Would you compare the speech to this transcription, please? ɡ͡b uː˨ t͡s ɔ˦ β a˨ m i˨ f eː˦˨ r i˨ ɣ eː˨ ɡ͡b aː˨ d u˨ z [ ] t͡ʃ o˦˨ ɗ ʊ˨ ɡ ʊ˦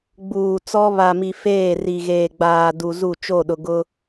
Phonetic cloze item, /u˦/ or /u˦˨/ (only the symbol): u˦˨